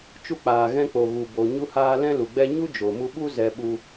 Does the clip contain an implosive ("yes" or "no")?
yes